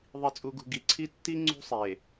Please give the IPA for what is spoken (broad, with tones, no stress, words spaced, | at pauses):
ðˤi˨t͡sʼu˨ɡṳ˨ ɡi˨ǀʰi˦ tːi˦ ŋ͡ǀṳ˦sˤe˨